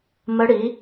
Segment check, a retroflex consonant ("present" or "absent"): present